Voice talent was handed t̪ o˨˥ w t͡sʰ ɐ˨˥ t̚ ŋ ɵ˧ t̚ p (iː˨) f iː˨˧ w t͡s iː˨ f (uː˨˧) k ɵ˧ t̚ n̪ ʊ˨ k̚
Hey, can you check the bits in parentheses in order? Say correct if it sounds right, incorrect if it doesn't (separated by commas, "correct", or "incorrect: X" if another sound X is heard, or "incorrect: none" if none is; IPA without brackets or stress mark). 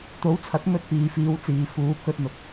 correct, correct